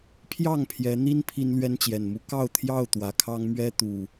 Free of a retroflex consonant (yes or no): yes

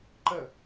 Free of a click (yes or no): no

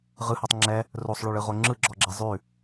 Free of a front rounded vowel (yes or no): no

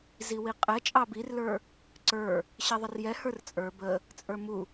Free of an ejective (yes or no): no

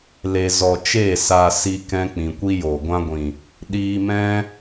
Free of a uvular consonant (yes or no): yes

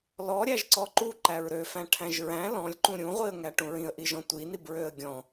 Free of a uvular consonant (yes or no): no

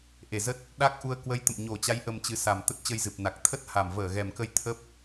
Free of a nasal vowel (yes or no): yes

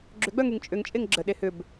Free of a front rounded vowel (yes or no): no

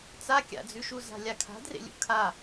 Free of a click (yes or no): yes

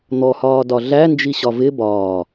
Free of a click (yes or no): yes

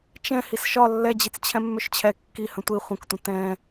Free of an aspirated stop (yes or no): no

